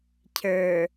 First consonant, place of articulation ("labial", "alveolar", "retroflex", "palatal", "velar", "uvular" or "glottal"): palatal